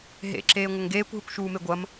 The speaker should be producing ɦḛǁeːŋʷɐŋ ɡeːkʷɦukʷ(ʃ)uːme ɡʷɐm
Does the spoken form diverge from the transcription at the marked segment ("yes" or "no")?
no